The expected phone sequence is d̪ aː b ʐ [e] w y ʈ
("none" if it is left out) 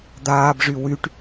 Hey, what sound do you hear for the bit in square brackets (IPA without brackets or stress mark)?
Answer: y